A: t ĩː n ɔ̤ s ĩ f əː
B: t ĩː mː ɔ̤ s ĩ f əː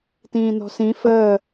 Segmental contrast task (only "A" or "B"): A